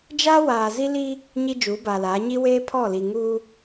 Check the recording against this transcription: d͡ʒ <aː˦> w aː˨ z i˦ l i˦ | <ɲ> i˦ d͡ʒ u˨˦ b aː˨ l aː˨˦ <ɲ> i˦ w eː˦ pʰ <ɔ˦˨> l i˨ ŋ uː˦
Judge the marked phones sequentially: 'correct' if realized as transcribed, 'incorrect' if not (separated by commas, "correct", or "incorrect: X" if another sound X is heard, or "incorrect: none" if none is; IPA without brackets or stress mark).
correct, correct, correct, correct